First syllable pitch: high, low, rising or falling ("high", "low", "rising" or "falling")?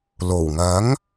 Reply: low